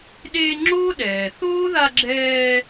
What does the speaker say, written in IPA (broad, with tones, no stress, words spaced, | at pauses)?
ɗeː˦ŋ͡ǁoː˥ ɗɛː˨θoː˥ða˦ɡ͡ǁɛː˦